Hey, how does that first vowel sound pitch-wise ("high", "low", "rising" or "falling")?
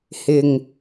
low